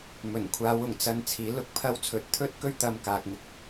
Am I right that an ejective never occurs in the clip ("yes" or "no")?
yes